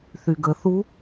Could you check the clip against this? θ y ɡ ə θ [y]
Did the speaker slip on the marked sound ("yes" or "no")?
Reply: yes